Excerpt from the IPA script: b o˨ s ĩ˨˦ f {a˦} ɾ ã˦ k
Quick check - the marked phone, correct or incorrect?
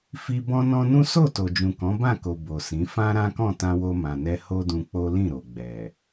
incorrect